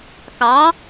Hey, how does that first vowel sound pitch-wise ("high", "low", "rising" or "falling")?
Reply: rising